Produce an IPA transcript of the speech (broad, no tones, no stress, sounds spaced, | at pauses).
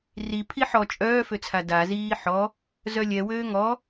r i pʰ i ħ ɔ t͡ʃʼ œː f ø t͡sʰ a d a z iː ħ ɔ | z œ lʲ ɛ w øː ŋ ɔ